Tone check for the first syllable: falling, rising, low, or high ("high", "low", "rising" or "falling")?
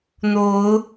rising